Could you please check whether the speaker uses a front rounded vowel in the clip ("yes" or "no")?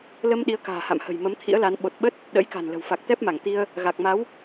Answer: no